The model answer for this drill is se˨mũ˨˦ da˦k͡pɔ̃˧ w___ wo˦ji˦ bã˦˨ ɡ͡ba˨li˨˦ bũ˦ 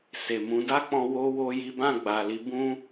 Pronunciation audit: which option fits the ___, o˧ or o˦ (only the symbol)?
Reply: o˦